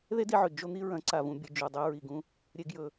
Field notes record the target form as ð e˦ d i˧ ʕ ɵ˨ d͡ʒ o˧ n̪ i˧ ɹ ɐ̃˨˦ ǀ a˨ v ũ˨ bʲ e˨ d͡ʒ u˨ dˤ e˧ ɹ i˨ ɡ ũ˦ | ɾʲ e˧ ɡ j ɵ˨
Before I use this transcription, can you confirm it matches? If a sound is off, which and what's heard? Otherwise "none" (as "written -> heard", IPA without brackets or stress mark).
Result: none